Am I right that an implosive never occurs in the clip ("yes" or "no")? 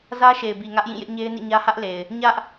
yes